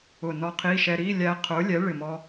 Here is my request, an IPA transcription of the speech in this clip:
ʊ˧˩ n ɔ˧ qʰ i˧˥˧ ʃ ɛ˧ ɾ i˧˥˧ lʲ æ˧ qʰ ʊ˨˥ lʲ ɛ˨˥ ɭ ɪ˧˩ m ɔ˧

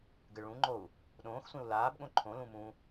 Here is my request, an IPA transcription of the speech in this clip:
ɡ ɨ ɭ ũ ŋ͡ǃ o u̯ | ɗ õː x sʷ ẽ u̯ l aː b ɠ õ ǃʰ õ l ũ m ũ

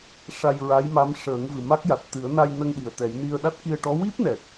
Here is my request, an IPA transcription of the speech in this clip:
ʂ a˧ j ɹ a˧˥ j m a˧˥ m ʂ əː˨˩˦ ŋ v ɨ˨˩ m a˦˥ k̚ j a˨˩ t̚ t̪ ɨ˨˩˦ ə̯ n a˧ j n ə˧ ŋ ɗ i˨˩ ə̯ t̪ ɛ˨˩˦ j n i˧ ə̯ ɗ a˦˥ t̚ k i˧ ə̯ ʈ ɔ˧˥ w i˦˥ p̚ n ɛ˨˩ k̚

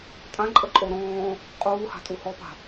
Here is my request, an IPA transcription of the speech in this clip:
tʼ ã ǃʼ ə ǃʼ o ɾ ɔ̃ː | qʼ uː h a̤ tʼ u h ɔ p a̤

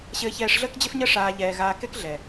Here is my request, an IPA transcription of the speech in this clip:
ɕ ɘː˧ ç ɛː˧ ʂ ɮ əː˦ k d͡ʑ ɘ˦ f ɲ ə˦ ʂ aː˧ ʎ ɛː˨ ɣ aː˧ k ɛ˦ k ɮ ɛ˨

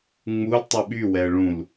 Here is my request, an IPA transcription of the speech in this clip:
ŋ͡m u l tˤ u ɓ y w ɛ ə̯ ɭ ũ l

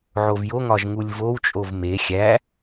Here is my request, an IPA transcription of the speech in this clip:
ʕ o v j o ŋ ɒ ʒ ŋ u lʲ v o w t͡ʃʼ o v m e xʲ æ

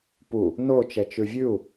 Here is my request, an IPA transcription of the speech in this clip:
p u | n o t͡ʃ ɛ t͡ʃ ʉ vʲ ʉ u̯

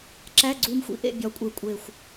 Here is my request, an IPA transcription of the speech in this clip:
ǁ æ˧˥˧ ɡ͡ǀ uː˧ m xʷ ḭ˧ ʔ ḛ˥˨ bʲ ɒ˧˥ kʷʼ e˧ kʷʼ eː˨˩ xʷ

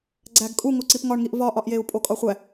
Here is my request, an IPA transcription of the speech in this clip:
ɡ͡ǀ æ ɡ kʼ u ŋ o ǀ i p ŋ ɒ ɳ ŋ i ʔ v ɒ ʔ ɒ ʔ j e u̯ pʼ o kʼ ɒ χʷ æ

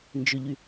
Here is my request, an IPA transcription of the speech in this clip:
n d͡ʒ ʏ ʎ y

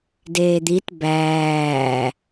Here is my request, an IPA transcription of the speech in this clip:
d eː d̪ i t b æː

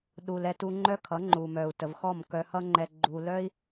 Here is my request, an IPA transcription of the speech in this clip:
ɗ u˨ l ɛ˧ t u˧ ŋ͡ǃ œ˦ kʰ ʌ˨˦ ŋ͡ǃ u˨ m œ˨ u̯ t ə˨ v x ɔ˦˨ m k œ˧ h ʌ˦ ŋ͡ǃ ɛ˧ ɡ͡ǃ u˧ l œ˦ i̯

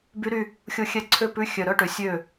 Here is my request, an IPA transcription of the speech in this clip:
b y˦˥ ɾ y˥˧ | xʲ o˥˩ xʲ ɛ˦˥ ǀʰ ø˥˧ p ʉ˧˥˧ xʲ œ˨ ɾ œ˧˥˧ ʈ ø˨ sʲ ø˥˩

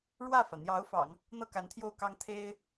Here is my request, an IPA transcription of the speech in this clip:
ɻ w ä˥˩ f ä˩ n̪ j ɑ˧˥ ʊ̯ f ɑ̰˨˩˦ ŋ | n̪ ɤ˥˩ k a˧˥ n t̪ʰ j o˥˩ ʊ̯ k ɑ˥ ŋ t̪ʰ e˥ ɪ̯

